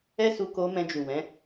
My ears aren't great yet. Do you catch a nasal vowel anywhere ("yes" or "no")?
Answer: yes